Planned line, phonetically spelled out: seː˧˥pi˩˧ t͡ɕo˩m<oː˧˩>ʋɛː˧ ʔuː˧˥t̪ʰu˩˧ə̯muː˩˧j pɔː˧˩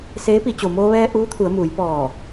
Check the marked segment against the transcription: incorrect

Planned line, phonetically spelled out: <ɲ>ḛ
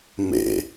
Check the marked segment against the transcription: incorrect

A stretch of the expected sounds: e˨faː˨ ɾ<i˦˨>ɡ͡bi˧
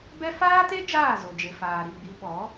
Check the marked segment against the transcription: correct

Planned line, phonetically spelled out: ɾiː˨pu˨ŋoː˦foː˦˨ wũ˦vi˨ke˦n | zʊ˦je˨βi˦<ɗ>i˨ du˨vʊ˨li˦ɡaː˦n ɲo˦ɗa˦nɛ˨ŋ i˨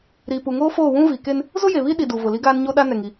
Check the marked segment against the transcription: correct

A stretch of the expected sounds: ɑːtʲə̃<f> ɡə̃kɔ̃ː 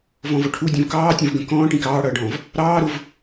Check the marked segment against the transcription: incorrect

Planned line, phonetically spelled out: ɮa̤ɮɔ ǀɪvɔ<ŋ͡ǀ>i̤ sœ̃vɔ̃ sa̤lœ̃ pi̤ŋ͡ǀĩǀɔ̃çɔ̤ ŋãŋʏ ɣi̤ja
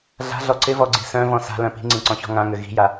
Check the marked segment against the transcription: incorrect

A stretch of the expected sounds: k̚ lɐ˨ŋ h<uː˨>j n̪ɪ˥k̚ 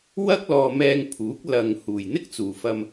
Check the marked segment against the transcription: correct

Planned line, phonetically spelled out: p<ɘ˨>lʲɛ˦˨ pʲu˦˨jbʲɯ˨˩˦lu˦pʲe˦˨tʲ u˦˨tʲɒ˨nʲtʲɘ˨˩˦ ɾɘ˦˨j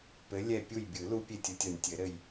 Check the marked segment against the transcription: incorrect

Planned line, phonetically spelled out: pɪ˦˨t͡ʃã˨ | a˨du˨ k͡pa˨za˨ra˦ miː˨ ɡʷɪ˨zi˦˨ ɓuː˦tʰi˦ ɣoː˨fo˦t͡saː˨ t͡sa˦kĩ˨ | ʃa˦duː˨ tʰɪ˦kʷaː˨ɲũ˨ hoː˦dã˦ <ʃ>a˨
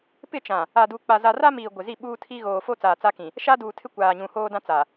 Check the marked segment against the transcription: incorrect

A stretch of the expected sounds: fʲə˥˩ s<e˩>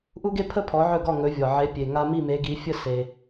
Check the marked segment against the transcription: correct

